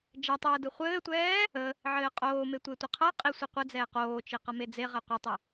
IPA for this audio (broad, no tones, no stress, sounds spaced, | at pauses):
d͡ʒ ɛ tˤ ɘː d ɯ χʷ ɘː tʷ ɛː | ə | ʕ ɘː qʼ oː m e tʷ e tʷ ə qʰ ʌ qʼ i sʷ e qʷ ɘ d͡z ɛː q oː t͡ʃ i q ʌ m e d͡z e ʁ ɛ qʷ ɯ tˤ ə